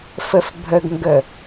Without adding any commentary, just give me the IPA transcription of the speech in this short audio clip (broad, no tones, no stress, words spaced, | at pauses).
fəfbʱəɡŋɡə